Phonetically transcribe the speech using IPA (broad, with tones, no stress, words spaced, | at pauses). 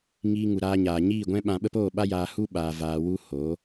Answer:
ŋiː˧ŋu˨ɾaː˧ɲaː˨ ɲiː˦˨ɡʷɛ̃˦ ɓã˧ɓə˦p oː˦˨ɓa˦jaː˧ hu˦ɓa˨ vaː˨wu˧ ho˨˦